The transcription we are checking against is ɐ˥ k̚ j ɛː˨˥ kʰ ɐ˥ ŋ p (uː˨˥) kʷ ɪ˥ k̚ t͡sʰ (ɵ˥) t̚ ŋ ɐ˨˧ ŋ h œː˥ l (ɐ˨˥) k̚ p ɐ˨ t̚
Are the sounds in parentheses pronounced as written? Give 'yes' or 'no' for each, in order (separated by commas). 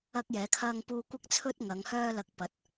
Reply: no, yes, no